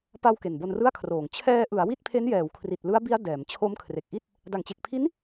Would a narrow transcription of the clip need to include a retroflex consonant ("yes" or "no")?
no